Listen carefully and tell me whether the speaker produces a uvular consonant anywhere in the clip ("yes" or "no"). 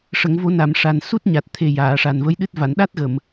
no